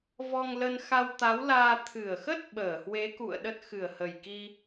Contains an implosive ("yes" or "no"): yes